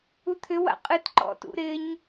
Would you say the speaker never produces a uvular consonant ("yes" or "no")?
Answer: no